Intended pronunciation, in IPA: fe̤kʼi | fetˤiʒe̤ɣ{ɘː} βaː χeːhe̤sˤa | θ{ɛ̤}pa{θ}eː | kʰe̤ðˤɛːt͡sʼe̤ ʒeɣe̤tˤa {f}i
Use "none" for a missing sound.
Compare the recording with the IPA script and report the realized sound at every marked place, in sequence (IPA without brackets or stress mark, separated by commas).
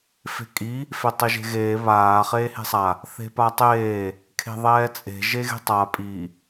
eː, e̤, tˤ, pʼ